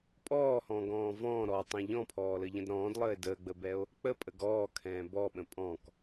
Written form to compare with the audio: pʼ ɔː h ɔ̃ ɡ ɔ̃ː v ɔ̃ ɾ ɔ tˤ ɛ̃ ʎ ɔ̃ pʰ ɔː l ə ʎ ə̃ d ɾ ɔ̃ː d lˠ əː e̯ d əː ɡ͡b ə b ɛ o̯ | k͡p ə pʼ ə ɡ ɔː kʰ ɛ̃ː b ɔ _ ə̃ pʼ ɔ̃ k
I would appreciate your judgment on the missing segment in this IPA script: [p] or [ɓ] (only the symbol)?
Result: ɓ